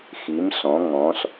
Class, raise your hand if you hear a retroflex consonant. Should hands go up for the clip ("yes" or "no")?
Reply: no